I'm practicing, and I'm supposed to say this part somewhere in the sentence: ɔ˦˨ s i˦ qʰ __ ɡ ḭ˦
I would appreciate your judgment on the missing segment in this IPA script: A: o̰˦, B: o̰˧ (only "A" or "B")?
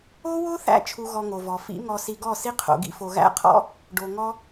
B